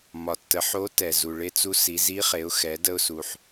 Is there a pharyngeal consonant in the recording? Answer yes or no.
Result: yes